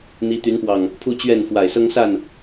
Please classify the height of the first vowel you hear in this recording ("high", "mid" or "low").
high